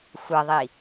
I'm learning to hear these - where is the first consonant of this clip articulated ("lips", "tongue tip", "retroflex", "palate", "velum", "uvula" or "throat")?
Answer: velum